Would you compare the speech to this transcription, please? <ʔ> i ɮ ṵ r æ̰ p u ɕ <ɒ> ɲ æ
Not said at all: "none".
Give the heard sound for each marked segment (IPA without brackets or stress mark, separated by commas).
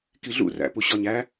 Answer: k, ɒ